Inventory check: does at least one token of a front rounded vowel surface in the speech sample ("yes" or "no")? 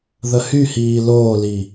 yes